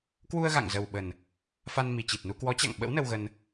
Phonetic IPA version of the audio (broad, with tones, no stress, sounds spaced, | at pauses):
k w u˧ ə̯ ɣ a̰˧˨ ŋ z ə˨˩ w ɓ ə˨˩ n | f a˧ n m i˨˩ t͡ɕ i˨˩ t̚ n u˧ k w ɔ˨˦ t͡ɕ a̰˧˨ ŋ ɓ ə̰˧˥ w n ə˧ w ɣ ə˧ n